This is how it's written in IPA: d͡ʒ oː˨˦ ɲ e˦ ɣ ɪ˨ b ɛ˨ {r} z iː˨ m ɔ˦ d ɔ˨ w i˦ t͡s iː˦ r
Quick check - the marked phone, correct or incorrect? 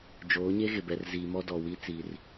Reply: correct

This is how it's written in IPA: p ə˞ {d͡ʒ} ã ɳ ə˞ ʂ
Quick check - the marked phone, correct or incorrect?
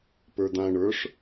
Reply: incorrect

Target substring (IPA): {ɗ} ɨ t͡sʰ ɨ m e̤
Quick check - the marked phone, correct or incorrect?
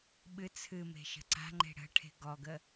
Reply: incorrect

